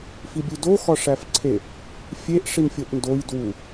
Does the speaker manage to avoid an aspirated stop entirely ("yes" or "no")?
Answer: no